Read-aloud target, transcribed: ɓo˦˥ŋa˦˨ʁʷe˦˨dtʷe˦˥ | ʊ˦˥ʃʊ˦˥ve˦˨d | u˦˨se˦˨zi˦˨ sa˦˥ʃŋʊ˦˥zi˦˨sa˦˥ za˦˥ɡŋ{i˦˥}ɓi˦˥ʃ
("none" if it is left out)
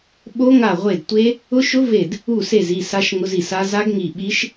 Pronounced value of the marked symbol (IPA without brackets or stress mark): i˦˨